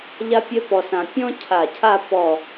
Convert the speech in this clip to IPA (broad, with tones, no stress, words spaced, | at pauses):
ʎa˥pʲœ˥pɔ˧sã˧ pʲɔ̃˥cʰa˧˩cʰa˥˧ pɔ˧˩